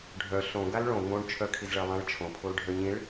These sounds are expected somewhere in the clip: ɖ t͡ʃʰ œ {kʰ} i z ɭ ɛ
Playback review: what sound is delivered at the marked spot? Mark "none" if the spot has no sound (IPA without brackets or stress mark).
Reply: kʰ